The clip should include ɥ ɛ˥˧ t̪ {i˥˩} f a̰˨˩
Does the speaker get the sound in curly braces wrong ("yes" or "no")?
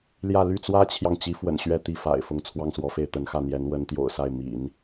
no